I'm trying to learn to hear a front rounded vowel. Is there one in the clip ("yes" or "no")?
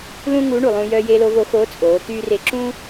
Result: yes